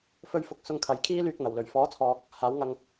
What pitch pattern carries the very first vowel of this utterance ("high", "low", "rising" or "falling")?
high